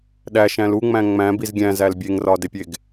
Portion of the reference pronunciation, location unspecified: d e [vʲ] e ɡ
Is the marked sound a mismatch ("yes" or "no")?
yes